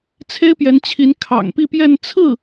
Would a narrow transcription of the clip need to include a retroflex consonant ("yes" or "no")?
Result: no